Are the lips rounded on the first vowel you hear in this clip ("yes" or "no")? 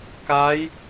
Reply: no